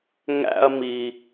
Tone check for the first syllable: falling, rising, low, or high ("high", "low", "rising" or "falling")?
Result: high